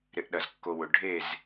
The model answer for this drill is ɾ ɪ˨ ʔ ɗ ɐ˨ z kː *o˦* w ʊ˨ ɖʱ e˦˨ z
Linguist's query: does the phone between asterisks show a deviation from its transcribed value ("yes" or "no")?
yes